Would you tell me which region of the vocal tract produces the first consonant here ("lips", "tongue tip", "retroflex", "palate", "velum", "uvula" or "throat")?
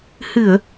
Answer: throat